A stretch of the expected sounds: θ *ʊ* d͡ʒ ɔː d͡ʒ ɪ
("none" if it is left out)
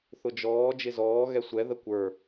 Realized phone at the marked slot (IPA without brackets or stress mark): ʊ